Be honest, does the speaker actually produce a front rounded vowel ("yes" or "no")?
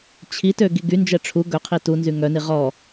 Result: yes